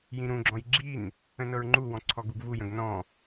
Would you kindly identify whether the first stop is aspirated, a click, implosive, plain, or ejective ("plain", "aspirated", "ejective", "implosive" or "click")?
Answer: click